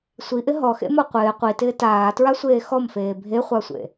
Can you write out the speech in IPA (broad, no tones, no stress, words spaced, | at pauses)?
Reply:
sʷiʔɪ ɦɔxḛmɔ qʷɪː qʷitɪː taːtɹasʷeː xɔmfeː bʱeχʷasʷḛ